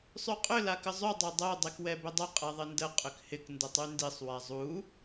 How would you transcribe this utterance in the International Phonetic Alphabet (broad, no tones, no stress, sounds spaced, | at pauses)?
sˤ y qʼ ʏ l a k ə zˤ y dˤ o dˤ o dˤ i k w ɛ b ʏ dˤ ʊ qʼ ɛ ðˤ ɪ n d ə qʼ ʏ k h ɪ k n d ə tˤ y n d i sˤ w a zˤ u